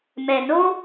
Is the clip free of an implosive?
yes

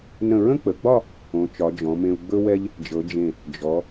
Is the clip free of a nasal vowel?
no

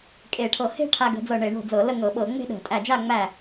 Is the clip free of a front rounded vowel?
yes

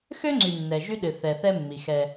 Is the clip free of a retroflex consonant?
yes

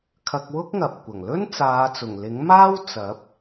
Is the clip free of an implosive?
yes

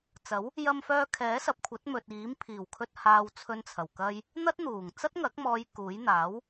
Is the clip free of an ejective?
yes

